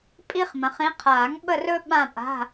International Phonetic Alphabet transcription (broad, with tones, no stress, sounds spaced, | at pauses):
pʼ i˥ χ m ə̃˨˦ χ ĩ˨˦ qʰ aː˨˩˦ ŋ ɓ ə˥˧ r ɵ˥ ɓ ã˥˧ pʼ a̤˧˥˧